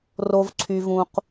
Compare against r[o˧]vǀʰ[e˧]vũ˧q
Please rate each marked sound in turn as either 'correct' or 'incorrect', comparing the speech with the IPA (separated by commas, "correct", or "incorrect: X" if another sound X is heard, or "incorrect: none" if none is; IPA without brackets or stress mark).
correct, incorrect: y˧